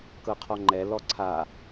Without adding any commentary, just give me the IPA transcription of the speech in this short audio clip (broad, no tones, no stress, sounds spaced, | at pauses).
k ɤ qʰ ɔ ŋ͡ǃ ɛ l ɔ ǀʰ a